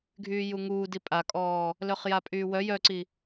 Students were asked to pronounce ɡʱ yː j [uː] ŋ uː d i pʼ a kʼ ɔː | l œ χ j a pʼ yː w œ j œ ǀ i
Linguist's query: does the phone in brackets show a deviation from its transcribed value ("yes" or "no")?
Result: yes